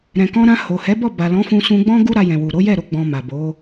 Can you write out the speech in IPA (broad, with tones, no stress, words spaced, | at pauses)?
ɾɛ̃˨kɔ̃˧ɾã˧ ho˨hɛ˨˦ bɔ˦˨ba˨ lɔ̃˨˦fũ˧sũ˧ɡ͡bɔ̃˦ ɡu˦ɾa˧jɛ̃˨wu˨ ɾo˨˦ jɛ˦˨ɾo˧ɡ͡bɔ̃˨ ma˨bo˨˦